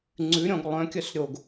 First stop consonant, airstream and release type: click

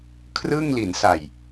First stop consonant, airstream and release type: aspirated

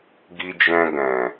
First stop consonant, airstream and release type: plain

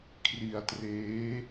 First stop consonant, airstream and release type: aspirated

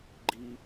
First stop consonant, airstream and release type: click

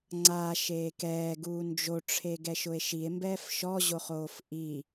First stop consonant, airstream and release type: click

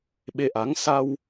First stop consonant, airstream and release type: implosive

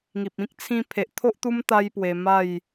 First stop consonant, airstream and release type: plain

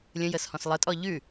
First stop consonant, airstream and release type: ejective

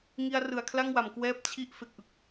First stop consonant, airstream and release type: aspirated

